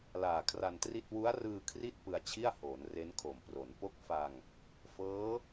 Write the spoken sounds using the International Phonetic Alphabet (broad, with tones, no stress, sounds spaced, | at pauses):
l aː˨˩ kʰ r a˧ n t r i˥˩ t̚ w u˦˥ a̯ r ɯː˧ kʰ r i˥˩ t̚ p ɯ˧ a̯ t͡ɕʰ i˥˩ a̯ h oː˩˦ n r e˦˥ n kʰ o˨˩ m p r o˩˦ n p o˦˥ k̚ f a˧ ŋ | f ɤː˦˥